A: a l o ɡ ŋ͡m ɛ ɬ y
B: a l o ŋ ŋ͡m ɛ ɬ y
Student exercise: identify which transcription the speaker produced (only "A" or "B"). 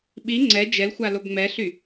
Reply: A